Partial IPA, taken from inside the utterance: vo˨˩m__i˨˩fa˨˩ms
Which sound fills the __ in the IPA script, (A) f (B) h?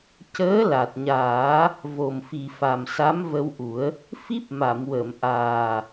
A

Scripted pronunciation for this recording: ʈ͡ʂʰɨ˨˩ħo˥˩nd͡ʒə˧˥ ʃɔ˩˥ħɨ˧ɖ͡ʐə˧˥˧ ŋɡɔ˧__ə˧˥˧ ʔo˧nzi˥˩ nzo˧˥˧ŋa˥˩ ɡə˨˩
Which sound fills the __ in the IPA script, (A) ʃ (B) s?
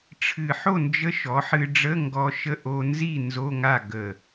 A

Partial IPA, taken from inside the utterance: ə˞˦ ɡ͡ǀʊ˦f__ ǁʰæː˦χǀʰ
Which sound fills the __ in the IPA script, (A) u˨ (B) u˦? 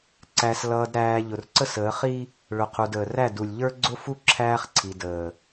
B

